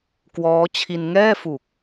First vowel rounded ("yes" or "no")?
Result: yes